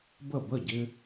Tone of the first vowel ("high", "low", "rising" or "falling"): falling